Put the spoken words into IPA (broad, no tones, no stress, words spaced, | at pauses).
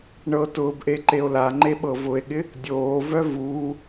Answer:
ɳɤ tʊːbʔe ǃeo̯laŋ͡ǃe ɓɤvʊe̯ɠɪ | dʲoːvœ vuː